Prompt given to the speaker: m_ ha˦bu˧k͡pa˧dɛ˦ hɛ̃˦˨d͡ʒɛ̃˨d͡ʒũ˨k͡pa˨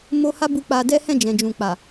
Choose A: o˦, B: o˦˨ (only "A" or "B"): A